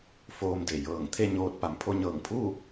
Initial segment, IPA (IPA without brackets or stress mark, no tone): f